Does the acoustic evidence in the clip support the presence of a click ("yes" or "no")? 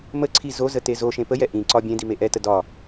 yes